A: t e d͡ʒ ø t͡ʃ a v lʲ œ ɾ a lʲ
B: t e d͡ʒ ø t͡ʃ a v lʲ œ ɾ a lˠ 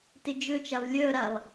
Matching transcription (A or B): B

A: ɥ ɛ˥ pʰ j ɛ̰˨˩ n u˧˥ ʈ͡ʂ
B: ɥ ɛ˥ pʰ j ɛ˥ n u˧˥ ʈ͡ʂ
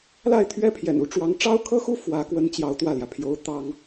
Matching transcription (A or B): A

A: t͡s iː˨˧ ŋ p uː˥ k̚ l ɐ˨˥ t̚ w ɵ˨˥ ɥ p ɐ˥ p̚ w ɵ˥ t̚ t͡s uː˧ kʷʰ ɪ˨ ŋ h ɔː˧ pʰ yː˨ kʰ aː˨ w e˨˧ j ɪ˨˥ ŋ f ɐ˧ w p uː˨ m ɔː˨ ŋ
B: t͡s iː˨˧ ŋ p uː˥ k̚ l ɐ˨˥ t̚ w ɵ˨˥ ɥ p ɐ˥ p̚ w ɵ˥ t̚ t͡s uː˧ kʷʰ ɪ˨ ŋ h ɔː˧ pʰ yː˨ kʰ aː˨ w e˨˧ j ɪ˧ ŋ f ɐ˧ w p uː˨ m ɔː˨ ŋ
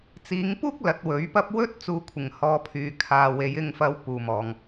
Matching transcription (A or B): B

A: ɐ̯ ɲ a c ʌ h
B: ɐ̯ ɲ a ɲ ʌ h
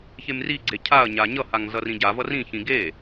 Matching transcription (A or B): B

